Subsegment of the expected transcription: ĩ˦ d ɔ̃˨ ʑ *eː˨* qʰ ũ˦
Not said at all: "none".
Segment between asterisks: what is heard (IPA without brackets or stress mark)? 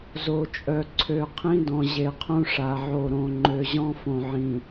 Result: e˨